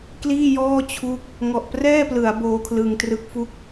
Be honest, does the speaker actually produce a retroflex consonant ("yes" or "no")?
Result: no